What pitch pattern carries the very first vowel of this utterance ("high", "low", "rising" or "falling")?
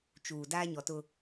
low